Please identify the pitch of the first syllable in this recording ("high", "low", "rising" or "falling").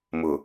low